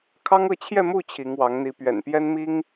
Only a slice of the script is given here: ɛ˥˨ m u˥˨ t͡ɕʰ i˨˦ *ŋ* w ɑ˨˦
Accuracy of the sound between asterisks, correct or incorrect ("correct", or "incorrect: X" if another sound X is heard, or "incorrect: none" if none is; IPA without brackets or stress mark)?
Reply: correct